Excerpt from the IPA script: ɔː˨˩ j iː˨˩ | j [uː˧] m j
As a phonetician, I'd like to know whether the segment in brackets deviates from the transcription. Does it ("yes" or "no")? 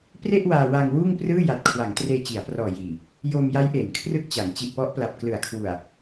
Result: yes